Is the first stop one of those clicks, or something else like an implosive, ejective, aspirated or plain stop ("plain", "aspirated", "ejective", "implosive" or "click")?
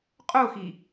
ejective